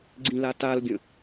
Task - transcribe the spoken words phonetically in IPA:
ɡ͡ǀ ĩ l a t a l ɡʲ ə̃

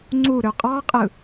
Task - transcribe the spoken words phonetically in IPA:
ŋ͡ǀ u ɾ ø qʼ ɑ qʼ ɯ

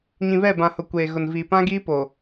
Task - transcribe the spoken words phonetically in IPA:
ɲ ĩ˨ β ɛ˦˨ b ã˨ h ʊ˨ kʷ eː˨ ɣ ʊ˨ n v iː˨ p ã˦ ɡ iː˦ p o˨

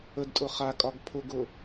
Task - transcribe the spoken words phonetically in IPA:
ə d tʼ ʊ χ a kʼ ɒ ɡ pʰ ʊ ɡ ʊ

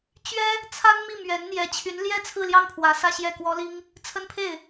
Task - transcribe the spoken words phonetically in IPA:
t͡ɕ ɥ ɛ˥ | t͡sʰ a˥ n m i˥˩ m ɥ ɛ˧˥ n n̪ j ɛ˧˥ t͡ɕʰ y˧˥ n l j ɛ˥ t͡sʰ ɹ̩˥˧ l j ɑ˥˩ ŋ pʰ w ä˧˥ s ä˥ ɕ j ɛ˥˩ k w ɔ˥ l i˥ ŋ | t͡sʰ ə˥ n pʰ e˥˩ ɪ̯

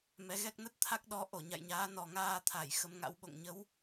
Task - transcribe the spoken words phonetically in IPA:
m ɛ˨˦ ɣ ɛ˦˥ k̚ n ə˦˥ t̚ t̪ʰ a˦˥ k̚ ɗ ɔ˨˦ ʔ o˧˩ ɲ a̰˧˨ j ɲ aː˨˦ n ɔ˨˩ ŋ aː˧ t̪ʰ a˧˩ j x ə˨˦ m ŋ a̰˧˥ w ɓ o̰˧˨ ŋ ɲ ə˨˦ w

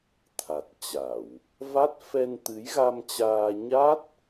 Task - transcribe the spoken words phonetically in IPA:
t̪ʰ a˨˩ t̚ t͡ɕ a˧˩˨ w | v a˦˥ t̚ f ɛ˧ n t̪ ɨ˨˦ j ɣ a˧ m t͡ɕ aː˧ ɲ a˦˥ t̚

